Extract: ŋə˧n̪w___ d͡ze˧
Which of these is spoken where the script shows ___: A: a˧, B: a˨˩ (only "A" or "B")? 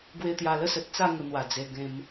B